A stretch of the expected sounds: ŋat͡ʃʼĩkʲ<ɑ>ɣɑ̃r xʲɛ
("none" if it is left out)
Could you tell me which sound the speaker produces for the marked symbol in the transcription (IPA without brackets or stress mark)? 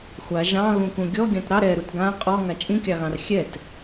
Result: ɑ